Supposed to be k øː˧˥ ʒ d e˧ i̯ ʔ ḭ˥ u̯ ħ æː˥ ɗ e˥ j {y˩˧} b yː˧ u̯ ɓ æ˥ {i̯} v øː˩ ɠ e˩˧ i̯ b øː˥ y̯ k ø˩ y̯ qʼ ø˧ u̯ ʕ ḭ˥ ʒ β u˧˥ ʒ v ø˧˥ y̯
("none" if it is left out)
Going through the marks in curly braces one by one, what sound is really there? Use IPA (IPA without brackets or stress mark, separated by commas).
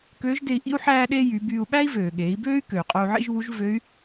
y˩˧, i̯